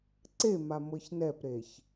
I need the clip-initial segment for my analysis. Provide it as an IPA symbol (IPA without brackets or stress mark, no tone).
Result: ǀ